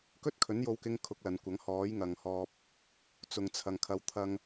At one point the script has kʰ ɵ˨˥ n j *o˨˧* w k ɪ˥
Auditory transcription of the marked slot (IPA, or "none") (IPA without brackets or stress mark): o˧